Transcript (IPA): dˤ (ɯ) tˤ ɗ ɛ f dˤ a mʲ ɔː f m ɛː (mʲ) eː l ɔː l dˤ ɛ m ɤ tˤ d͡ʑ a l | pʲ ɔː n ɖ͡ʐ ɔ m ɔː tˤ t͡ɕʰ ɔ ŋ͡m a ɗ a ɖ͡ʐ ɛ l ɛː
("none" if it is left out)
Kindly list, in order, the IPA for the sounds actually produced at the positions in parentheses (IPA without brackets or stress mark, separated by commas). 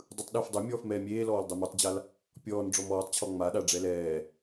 ɯ, mʲ